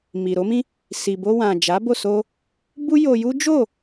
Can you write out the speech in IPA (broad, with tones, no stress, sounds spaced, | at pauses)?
m i˨ ɾ o˨˦ m ĩ˦ | s i˨ b o˧ w ã˨ d͡ʒ a˨˦ b o˦˨ s o˧ | b u˦ j o˧ j u˦ d͡ʒ o˦˨